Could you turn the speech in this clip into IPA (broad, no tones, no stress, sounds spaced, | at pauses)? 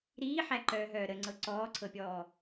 ɾ iː ħ æ ǃ œː ɦ œː ɾ ə ŋ͡ǀ ɤ ǀ ɔː ǀʰ ɤ pʲ ɔː